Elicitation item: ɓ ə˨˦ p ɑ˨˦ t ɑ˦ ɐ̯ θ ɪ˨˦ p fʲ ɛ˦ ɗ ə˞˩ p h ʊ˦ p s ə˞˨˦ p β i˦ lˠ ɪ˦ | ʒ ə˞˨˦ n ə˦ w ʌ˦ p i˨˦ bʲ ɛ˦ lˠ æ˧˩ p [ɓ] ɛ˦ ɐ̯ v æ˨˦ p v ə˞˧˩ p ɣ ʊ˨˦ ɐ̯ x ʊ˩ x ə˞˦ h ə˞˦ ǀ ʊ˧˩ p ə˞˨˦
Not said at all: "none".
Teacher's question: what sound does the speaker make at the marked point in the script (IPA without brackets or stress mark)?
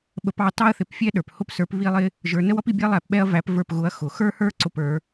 ɓ